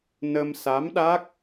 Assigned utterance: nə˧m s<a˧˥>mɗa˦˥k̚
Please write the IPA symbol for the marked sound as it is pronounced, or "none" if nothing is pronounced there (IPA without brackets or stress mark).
a˧˥